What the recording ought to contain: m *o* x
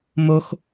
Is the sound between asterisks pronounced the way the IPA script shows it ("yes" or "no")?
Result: yes